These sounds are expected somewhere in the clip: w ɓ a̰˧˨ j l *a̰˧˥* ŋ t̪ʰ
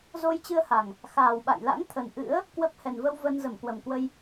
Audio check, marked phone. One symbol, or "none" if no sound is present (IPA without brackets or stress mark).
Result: a̰˧˥